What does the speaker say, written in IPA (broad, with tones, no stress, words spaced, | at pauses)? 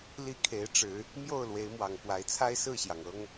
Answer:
li˥˨kʰe˨˦ɪ̯ʈ͡ʂɻ̩˨˦ | mjo˥˨ʊ̯lwe˨˦ɪ̯mwɑ˨˩ŋkwa˨˦ɪ̯ t͡sʰa˦ɪ̯sɹ̩˥˨ɕjɑ˩ŋ ɤ˦ŋ